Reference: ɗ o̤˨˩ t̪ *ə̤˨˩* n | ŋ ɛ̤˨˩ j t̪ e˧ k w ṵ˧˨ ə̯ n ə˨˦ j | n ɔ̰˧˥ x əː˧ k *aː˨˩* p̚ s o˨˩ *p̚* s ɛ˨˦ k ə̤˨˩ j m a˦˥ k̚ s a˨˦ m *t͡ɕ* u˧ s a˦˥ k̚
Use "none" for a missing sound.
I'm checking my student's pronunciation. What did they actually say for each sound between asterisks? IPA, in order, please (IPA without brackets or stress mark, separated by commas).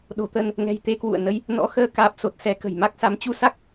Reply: ə˧, aː˨˩, t̚, t͡ɕ